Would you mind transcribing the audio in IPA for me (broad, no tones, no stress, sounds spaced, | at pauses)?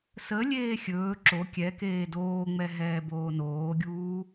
s ə lʲ eː xʲ ɵː ǁ o kʲ ɛ k eː d oː ŋ͡m ɛ ɦ ɛː b oː n oː ɡʲ uː